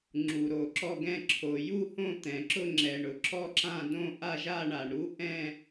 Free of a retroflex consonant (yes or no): no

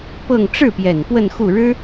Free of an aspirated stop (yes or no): yes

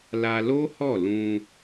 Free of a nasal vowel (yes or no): no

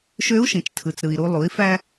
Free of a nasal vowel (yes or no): no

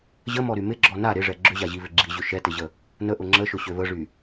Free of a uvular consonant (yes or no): yes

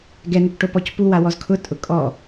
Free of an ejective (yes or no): no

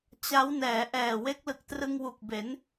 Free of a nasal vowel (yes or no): yes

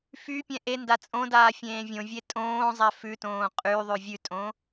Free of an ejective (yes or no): no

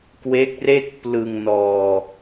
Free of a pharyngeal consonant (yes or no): yes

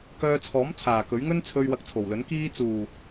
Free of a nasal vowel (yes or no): yes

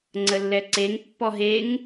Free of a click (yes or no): no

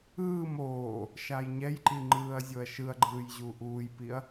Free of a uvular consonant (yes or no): yes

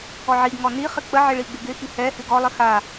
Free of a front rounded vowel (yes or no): yes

